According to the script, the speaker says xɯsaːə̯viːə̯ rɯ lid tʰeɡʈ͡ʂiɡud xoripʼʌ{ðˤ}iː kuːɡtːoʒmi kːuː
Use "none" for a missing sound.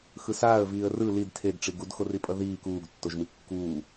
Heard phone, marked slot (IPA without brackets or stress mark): ð